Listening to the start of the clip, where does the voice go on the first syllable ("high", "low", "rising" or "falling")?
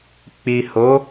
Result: low